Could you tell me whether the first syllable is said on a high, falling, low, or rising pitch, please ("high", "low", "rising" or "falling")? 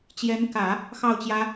rising